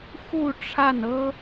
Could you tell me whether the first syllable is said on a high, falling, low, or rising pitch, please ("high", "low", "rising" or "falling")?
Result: falling